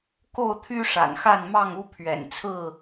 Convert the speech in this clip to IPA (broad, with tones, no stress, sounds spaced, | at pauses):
k o˥˨ ʊ̯ t̪ʰ y˦ ʂ a̰˨˩ n x a˥˨ n m ɑ˥˨ ŋ u˦ pʰ ɥ ɛ̰˨˩ n t͡sʰ ɹ̩˥˨